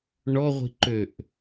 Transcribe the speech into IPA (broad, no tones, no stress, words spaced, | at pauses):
ɳɔʁʷi̤ǃøʔ